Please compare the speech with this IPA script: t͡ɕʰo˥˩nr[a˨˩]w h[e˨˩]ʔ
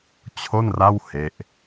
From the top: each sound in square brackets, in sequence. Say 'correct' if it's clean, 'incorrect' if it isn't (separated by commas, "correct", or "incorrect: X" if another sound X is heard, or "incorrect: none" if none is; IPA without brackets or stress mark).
incorrect: a˥˩, incorrect: e˦˥